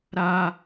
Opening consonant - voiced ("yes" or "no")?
yes